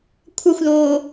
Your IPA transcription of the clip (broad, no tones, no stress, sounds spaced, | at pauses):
kʷʰ ʌ xʷ ð oː